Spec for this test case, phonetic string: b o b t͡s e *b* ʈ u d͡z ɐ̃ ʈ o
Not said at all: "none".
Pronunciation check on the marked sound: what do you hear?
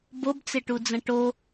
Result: none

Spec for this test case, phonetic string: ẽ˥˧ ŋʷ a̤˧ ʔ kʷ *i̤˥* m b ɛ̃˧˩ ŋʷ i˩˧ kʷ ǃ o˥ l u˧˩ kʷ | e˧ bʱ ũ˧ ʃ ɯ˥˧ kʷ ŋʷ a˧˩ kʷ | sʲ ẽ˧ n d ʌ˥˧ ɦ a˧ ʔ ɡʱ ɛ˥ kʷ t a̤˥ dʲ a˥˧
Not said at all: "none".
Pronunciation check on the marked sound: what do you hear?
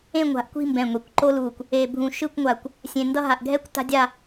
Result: i̤˥˧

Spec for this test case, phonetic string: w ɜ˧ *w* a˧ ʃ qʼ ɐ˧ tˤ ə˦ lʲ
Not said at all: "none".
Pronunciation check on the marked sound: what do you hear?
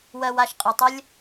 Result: w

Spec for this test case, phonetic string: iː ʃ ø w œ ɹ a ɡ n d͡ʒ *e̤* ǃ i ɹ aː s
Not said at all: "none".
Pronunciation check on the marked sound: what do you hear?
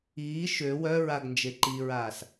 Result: e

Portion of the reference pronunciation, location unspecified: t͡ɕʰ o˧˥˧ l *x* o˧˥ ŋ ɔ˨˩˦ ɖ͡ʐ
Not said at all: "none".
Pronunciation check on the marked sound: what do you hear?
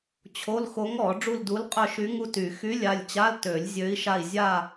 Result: x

